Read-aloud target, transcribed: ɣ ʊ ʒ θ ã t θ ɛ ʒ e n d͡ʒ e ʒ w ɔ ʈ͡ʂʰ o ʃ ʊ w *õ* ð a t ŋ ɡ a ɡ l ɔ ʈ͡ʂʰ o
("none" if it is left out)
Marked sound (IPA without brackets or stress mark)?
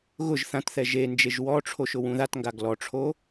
ũ